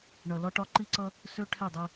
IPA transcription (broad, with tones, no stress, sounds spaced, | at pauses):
ɳ ʌ˨ l ɒ˦ ʈ ɒ˦ ǃ i˦ ǀ ʌ˦ | s ø˦ ʈʰ ɛ˦˨ dˤ ɛ˦